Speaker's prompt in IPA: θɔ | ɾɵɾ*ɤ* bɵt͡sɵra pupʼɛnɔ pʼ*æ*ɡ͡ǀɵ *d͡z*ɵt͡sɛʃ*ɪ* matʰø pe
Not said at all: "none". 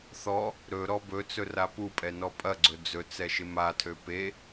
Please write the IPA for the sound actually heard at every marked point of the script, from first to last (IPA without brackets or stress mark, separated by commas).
ɔ, ɐ, d͡z, ɪ